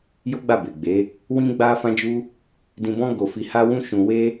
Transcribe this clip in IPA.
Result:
j o˦ ɡ͡b a˦˨ b e˨ ɡ͡b e˨˦ | w ĩ˦ ɡ͡b a˦ f ã˦ d͡ʒ u˦ | d ĩ˧ b ɔ̃˦ ɡ o˧ f i˧ h a˦ w ũ˦ ʃ ũ˧ w e˦

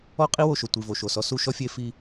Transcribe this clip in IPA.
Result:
ɔ˦ qʼ i˦ w o˨ ʃ o˨ tʷ i˨ v o˨ ʃ o˨ s ɔ˦ s u˦ ʃ ɔ˦ fʲ e˦ f i˦

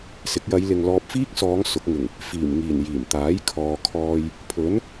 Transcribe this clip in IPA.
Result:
s ɪ˨˥ k̚ j ɐ˨˧ j l ɪ˨ ŋ l ɔː˧ p̚ f iː˥ k̚ s ɔː˨˧ ŋ s ʊ˨˥ k̚ ŋ ɪ˨˩ ŋ | f iː˨˩ m ŋ iː˨˩ n j iː˨˩ m t̪ aː˨˥ j kʰ ɔː˨ kʰ ɔː˧ j | pʰ ɵ˨˥ n

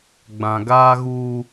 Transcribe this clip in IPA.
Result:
ɡ͡b ã˨ ɡ aː˦ ɣ uː˦

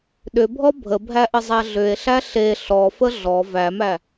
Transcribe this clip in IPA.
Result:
ɗ ʏ bʱ ɔ bʱ ə bʱ æ ʔ ə zˤ æ ɮ ʏ e̯ ɬ æ ɬ e ɬ ɔ f ə ɮ ɔ v æ m æ

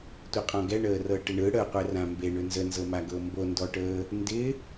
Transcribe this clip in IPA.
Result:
tʷ ɪ qʼ ɔ̃ ɡ ɛ ɳ əː r ɤ ʈ ɪ ɳ ɯ ɽ ə qʷ ɛ r ã m b e ɳ ʏ n z ə n z ɤ m a ɡ ɤ m b o n d ɔ ʈ əː | n d ɪ

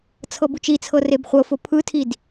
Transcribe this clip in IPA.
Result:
t͡sʰ ɤ b u t͡ʃ i t͡sʰ ɤ r e b χʷ ɤ f o pʰ ɯ tʰ i d

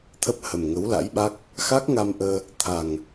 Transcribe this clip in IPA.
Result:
t̪ʰ ə˦˥ p̚ h ə˨˩ m ŋ ə˨˦ w l a̰˧˥ j ɓ a˦˥ k̚ | x a˦˥ k̚ ŋ a˧ m ʔ əː˧ | t̪ʰ a˨˩ ŋ

